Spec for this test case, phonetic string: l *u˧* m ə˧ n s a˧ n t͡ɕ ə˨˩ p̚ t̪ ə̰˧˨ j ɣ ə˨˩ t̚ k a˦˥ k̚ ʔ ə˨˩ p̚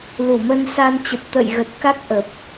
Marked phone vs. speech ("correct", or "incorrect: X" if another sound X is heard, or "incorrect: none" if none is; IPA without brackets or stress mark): incorrect: u˧˩